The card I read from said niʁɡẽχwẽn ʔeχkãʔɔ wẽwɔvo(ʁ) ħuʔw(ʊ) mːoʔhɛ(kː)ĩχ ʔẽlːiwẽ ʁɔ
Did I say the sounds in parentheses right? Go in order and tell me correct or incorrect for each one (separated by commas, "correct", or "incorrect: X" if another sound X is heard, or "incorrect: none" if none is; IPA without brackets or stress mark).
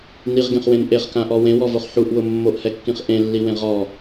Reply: incorrect: χ, correct, correct